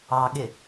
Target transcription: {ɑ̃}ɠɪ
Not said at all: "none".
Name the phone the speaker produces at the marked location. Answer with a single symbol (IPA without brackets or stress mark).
ɑ